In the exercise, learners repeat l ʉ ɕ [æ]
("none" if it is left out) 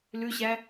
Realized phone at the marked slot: æ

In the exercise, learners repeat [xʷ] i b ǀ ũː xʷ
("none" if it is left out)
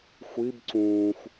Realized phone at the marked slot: xʷ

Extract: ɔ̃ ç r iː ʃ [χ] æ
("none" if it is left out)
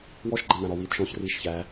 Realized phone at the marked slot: ç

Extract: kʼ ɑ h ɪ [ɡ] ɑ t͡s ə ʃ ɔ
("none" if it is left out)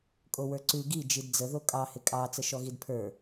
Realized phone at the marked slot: kʼ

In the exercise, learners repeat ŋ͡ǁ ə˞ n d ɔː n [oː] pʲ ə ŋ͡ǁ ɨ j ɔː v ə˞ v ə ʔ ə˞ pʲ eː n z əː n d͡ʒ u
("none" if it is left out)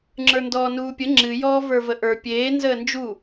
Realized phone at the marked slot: uː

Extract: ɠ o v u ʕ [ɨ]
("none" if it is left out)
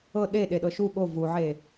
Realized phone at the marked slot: e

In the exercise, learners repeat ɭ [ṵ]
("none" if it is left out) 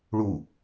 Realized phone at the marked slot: u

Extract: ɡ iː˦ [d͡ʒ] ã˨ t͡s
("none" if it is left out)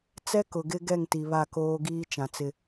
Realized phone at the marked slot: t͡ʃ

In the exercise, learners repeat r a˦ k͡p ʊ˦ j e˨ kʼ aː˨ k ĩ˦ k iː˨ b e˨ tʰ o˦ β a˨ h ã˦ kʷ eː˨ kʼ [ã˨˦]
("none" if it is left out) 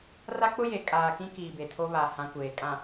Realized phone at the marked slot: ã˨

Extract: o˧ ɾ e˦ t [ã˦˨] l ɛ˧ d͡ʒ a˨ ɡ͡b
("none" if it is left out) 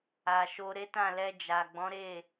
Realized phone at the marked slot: ã˦˨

